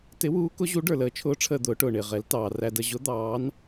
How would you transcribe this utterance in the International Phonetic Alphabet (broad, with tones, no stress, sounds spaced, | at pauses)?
t ɪ˧˥ w uː˧˥ k ʊ˧˥ ʑ u˧˥ ɖ ə˞˧ l əː˧˥ t͡ʃʰ ʊː˧˥ ʈ͡ʂʰ əː˧ d̪ ʊː˧˥ ʈ ʊː˧ ɳ ɪː˧ ʁ ɛ˧˥ l t ɑː˧ r æ˧ d ə˧ ʑ ʊ˧˥ d̪ ɑː˧˥ n